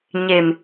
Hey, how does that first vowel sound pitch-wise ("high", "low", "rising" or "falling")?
low